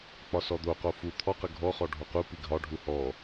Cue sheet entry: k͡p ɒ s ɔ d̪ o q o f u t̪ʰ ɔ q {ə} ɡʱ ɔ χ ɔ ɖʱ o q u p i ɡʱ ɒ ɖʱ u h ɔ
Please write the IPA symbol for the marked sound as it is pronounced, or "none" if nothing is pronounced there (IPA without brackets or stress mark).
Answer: ə